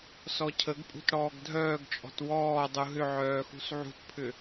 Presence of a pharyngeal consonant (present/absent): present